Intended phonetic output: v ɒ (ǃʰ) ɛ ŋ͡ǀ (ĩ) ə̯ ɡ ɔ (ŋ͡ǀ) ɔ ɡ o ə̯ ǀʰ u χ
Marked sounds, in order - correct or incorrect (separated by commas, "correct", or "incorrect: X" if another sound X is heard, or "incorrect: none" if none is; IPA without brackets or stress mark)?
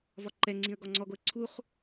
incorrect: ǃ, correct, correct